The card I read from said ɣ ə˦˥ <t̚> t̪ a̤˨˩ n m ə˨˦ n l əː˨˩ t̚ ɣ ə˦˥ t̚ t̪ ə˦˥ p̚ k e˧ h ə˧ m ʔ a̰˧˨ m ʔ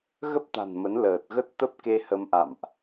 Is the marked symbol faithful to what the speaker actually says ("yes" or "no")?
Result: no